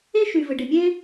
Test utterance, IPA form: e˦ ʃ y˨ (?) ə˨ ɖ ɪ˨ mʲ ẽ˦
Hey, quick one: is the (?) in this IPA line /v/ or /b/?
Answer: v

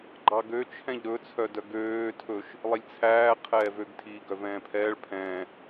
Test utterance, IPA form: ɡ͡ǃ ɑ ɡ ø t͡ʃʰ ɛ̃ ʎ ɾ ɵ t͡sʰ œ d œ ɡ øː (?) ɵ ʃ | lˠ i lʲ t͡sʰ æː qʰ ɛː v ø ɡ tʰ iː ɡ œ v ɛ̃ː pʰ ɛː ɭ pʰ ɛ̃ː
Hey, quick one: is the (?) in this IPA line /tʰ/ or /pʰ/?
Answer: tʰ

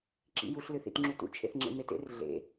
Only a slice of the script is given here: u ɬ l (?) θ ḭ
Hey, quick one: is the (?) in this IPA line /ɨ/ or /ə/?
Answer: ɨ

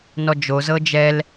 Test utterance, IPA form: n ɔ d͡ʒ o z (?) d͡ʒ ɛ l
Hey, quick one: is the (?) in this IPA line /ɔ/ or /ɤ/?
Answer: ɤ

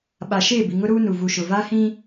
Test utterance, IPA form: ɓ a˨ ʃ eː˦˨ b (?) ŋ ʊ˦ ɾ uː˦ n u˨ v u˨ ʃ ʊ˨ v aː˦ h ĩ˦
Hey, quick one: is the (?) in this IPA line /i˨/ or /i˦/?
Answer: i˨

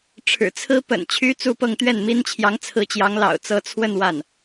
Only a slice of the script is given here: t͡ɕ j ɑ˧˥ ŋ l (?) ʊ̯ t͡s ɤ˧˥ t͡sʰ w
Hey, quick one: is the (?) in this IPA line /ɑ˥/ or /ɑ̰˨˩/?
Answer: ɑ̰˨˩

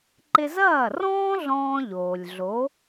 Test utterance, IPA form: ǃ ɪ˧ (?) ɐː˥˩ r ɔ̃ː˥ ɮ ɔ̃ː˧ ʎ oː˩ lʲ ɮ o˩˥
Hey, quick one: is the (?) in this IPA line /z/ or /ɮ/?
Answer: z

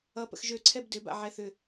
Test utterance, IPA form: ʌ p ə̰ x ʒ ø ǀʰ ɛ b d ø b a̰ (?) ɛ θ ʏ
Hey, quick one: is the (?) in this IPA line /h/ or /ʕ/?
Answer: ʕ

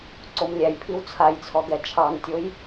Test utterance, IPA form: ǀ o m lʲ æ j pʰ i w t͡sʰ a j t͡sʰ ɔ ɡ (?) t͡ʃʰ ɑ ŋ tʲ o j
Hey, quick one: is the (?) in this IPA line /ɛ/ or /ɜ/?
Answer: ɛ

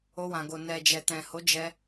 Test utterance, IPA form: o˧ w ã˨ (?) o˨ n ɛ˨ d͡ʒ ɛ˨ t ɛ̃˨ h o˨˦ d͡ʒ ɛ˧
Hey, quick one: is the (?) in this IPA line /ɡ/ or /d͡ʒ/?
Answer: ɡ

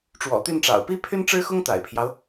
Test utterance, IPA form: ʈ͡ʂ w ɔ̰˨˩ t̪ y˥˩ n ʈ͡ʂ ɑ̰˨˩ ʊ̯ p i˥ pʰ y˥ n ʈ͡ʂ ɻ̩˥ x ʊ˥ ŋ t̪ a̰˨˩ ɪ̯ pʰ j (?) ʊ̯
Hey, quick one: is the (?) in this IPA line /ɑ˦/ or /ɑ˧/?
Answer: ɑ˦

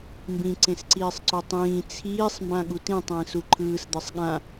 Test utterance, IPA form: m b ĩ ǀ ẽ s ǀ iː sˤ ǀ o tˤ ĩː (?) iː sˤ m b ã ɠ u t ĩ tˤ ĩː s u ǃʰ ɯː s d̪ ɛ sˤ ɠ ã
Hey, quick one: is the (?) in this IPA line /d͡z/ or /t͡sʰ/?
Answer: t͡sʰ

